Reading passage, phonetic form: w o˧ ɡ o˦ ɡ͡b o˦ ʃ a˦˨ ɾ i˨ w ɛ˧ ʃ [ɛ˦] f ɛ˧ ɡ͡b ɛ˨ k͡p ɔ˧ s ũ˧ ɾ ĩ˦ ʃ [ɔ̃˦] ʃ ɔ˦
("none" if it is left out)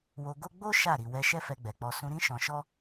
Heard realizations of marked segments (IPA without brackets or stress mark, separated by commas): ɛ˦, ɔ̃˧